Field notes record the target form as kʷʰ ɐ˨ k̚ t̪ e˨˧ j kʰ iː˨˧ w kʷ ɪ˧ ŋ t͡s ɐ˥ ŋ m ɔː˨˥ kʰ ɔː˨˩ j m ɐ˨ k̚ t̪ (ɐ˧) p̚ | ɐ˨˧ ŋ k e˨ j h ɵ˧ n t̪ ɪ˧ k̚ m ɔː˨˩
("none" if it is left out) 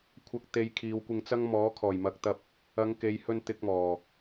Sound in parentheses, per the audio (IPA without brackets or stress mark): ɐ˧